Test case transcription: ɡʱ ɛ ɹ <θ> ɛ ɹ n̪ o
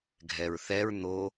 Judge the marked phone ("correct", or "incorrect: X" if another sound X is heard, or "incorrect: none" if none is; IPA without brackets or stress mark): correct